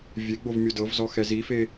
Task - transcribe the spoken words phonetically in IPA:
vʲeɡ͡bov mʲodɤvzɔ xɛzife

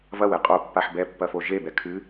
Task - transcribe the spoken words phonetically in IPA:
vɐwe qʼo pːaħbɛpːɐ foʒebɛ kʰɨ

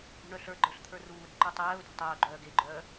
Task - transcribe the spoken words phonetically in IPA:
ʔṳɳœɬə˞ɡ͡ǃə˞ɬ t̪ʰə˞ruːɾɛ̤ ǃutˤɛːʊ̯de̤ tˤœːɡ͡ǃœː ɡeɡ͡ǃœː

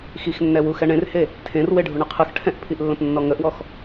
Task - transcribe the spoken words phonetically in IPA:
xixnːɛwu xɛɳẽrhe | tʰẽrweɖʱu ɳəqʰɯx ʈʰɛ̃ʔpʰiʔlːə̃p nːɔŋəʔwɔx

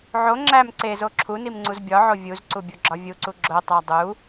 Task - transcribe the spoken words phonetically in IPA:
ʕo ŋ͡ǁæm ǀezo ǁʰunimŋ͡ǀuz bʲɒʕo vʲuzǀubʲoɡ͡ǁɒ vʲuǀu ɡ͡ǁotˤæ dˤu

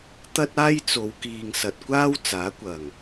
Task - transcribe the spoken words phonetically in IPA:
t̪ɐ˥t̚ aː˥jt͡so˨˧wkiː˨ŋ sɐ˨t̚kʷaː˥w t͡saː˨˥kʷɐ˨˩ŋ

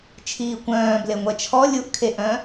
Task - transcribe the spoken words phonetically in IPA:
t͡ʃʰiːkʷœ̃ː bleŋʷɛt͡ʃʰɔ lʲuʔ kʰeʔœ̃

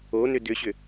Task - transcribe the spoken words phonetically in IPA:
onʏ dʏɕʏ

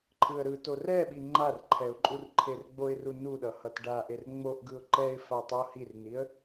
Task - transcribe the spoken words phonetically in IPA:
ǃʰɯə̯ɾɯto rɛɓi ŋ͡ǃarǃʰɛʊ̯ ǃʼurǃʰerɡ͡boɪ̯ru nuɗʌ hʌtɖaʔer ŋ͡moʔ ɡɯʊ̯ǃɛɪ̯fa tˤohirniə̯

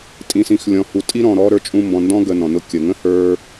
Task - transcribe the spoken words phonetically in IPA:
tʼĩ˨sĩ˨xlʲɔ̃˨hu˨ tʼi˥ɾɔ̃˨ɾɔ˦ ɾə˞˦t͡ʃʼũ˦ mbɔ̃˨ndɔ̃˥ ɡə˨ nɔ̃˩nʊ˦ kʲə˩ŋə̃˥hə˞˦

